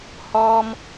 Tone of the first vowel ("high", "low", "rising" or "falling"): high